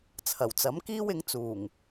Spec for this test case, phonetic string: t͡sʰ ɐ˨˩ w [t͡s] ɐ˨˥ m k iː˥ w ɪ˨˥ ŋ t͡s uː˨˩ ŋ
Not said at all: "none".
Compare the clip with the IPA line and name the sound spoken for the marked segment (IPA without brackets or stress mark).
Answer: t͡s